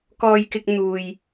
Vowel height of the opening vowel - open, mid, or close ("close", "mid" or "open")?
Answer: mid